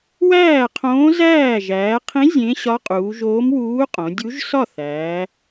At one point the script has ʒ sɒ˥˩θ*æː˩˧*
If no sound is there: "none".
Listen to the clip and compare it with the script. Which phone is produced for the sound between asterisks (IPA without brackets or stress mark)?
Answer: æː˩˧